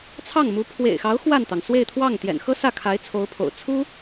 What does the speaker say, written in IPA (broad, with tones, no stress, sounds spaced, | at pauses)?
t͡sʰ ɑ˥˩ ŋ m u˧˥ pʰ w ḛ˨˩ ɪ̯ x ɑ˧˥ ʊ̯ x w a˥˩ n t̪ ɑ˩ ŋ s w e˥˧ ɪ̯ t̪ʰ w ɑ˥˩ ŋ t̪ j ɛ̰˨˩ n x ɤ˥ s ä˥˩ kʰ a˧˥ ɪ̯ t͡sʰ o˧˥ ʊ̯ pʰ o̰˨˩ ʊ̯ t͡sʰ u˥